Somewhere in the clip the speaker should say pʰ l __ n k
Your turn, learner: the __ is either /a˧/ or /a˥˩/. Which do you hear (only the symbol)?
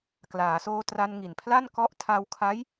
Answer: a˥˩